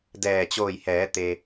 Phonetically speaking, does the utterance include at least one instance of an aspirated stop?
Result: no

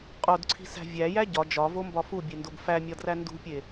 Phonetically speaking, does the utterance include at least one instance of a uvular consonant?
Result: yes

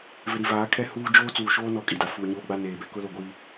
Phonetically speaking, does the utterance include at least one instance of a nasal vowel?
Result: no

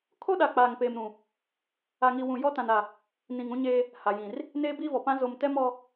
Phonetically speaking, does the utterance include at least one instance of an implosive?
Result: yes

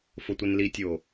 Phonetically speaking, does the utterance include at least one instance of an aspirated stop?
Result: no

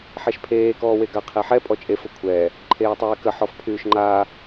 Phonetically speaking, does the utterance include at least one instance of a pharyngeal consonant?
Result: yes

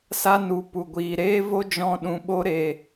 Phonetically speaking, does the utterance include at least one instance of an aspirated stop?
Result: no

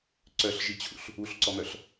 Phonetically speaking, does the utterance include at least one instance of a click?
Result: yes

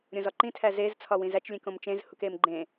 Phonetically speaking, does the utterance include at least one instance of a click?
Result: yes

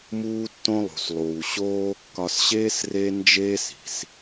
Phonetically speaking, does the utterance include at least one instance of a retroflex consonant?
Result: no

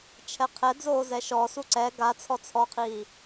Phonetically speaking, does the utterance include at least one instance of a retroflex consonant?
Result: no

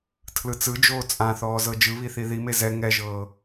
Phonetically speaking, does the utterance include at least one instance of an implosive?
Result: no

